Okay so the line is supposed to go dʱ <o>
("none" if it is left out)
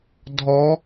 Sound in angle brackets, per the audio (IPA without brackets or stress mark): ɔ